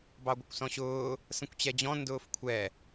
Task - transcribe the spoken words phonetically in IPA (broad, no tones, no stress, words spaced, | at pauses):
bɑɡʷəkʷsɔ̃ɕʊː | sə̃kʷt͡ɕɛd͡ʑɔ̃ ndʊːfkʷʰɛ